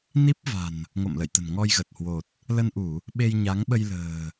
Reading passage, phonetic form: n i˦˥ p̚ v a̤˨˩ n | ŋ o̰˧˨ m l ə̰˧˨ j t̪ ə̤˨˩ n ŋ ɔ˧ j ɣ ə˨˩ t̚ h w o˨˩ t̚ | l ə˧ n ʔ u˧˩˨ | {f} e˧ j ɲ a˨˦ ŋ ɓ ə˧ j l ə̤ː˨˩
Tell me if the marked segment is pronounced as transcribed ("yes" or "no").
no